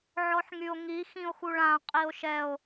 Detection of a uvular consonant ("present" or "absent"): present